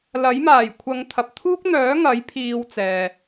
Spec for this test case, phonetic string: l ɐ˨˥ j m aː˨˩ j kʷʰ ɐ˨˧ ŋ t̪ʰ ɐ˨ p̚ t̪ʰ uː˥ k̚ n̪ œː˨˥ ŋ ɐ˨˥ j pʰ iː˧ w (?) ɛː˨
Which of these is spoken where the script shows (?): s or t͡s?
t͡s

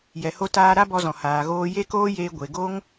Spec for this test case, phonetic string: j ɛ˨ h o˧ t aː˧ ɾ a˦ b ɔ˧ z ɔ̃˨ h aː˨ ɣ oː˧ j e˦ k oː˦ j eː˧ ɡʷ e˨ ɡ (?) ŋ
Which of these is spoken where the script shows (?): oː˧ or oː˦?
oː˦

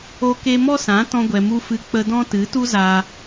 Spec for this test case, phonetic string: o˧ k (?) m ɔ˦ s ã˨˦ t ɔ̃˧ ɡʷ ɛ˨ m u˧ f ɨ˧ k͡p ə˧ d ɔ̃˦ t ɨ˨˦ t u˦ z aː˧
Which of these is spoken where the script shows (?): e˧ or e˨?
e˧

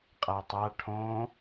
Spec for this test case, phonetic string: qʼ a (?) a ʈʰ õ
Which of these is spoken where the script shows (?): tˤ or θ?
tˤ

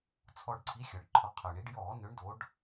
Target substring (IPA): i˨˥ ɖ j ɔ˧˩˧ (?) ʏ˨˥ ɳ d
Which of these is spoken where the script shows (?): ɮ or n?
n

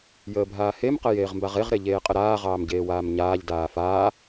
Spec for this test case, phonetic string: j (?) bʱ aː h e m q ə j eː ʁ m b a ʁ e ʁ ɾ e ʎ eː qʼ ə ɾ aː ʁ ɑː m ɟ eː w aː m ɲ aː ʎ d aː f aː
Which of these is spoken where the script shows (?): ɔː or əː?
əː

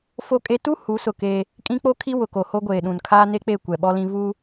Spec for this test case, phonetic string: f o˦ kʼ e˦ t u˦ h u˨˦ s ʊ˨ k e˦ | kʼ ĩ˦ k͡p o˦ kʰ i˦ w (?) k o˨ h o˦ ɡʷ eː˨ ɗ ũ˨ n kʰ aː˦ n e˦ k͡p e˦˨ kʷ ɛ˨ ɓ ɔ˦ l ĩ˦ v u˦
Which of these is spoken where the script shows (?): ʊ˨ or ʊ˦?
ʊ˨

